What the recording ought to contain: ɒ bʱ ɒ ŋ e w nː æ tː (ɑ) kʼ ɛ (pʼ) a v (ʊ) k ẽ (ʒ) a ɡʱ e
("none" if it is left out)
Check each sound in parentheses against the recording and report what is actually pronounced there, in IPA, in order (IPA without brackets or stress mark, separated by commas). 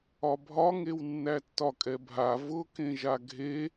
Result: ɒ, bʱ, ʊ, ʒ